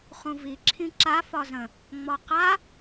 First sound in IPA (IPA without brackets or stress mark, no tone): χ